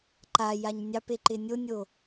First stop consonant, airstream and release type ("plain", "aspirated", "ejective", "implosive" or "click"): click